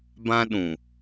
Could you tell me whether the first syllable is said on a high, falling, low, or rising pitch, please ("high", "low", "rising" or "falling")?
high